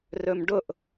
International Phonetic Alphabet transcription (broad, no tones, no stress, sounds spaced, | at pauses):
r ɵ m ɖ ʊ ʔ